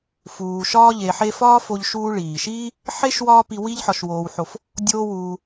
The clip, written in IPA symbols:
f uː˨ ʃ ɒː˦ ʎ e˨ ħ e˦ f ɒː˥ f o˦ ʎ ʃ uː˥ ɭ iː˩ ʃ iː˥ | ħ e˥ ʃ w ɒː˦ p i˦ w i˦ ʎ ħ ɒ˨ ʃ w oː˨ w ħ o˨ f | dʲ oː˦ w uː˨

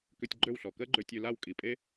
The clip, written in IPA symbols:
k ø˧ tʲ ɡ͡ǃ ø˦˨ w ɬ ɔ˨ k ɜ˦ ɡ͡ǃ ø˧ tʲ ø˧ l a˦˨ w kʼ i˨ pʼ e˦

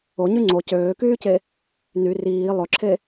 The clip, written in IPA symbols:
o ɲ y ŋ͡ǀ o c øː k yː c e | n y r iː lˠ ɵ ǁʰ e

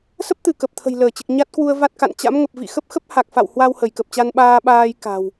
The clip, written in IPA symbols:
s ə˦˥ p̚ t̪ ɨ˧˩ k ə˨˩ p̚ t̪ʰ ə̤˨˩ j l əː˧˩ t͡ɕ ɨ˨˩ k̚ ɲ a˦˥ t̚ k w u˧ ə̯ v a˦˥ t̚ k a̰˧˨ n t͡ɕ a̰˧˥ m ŋ ə˨˩ p̚ v ḭ˧˨ x ə˦˥ p̚ x ə˦˥ p̚ h a˨˩ k̚ f a̰˧˨ w h w a˧ w h ə˧˩ j k ə˨˩ p̚ t͡ɕ a˧ n ɓ aː˧ ɓ aː˧ j k a̤˨˩ w

